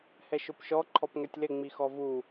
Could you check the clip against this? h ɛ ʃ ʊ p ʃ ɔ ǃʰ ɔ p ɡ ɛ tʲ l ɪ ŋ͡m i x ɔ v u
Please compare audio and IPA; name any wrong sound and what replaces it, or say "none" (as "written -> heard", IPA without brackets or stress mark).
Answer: ɡ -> ŋ